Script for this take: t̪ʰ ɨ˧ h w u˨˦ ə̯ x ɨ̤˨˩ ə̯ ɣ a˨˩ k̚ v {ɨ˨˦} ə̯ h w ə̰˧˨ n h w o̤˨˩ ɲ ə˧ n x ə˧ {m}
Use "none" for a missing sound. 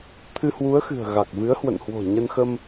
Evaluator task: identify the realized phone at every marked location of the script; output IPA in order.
ɨ˨˦, m

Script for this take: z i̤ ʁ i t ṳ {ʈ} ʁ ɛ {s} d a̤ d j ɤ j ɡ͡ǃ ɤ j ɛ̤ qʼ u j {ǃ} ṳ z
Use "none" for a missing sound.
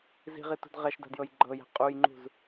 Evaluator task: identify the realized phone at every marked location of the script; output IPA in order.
d, ʃ, ŋ͡ǃ

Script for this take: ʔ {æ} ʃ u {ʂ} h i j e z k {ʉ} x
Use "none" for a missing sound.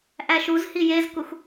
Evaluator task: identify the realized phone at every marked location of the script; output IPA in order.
æ, z, u

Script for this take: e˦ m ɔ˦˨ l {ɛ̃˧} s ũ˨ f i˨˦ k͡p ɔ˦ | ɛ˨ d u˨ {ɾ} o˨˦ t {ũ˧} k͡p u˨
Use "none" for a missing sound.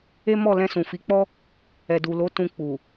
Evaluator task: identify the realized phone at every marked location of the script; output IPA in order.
ɛ̃˧, l, ũ˧

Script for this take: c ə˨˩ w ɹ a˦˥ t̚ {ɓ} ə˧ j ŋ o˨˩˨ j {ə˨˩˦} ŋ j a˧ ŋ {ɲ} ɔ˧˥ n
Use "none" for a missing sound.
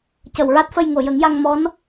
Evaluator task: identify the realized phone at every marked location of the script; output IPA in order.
f, ə˨˩˦, m

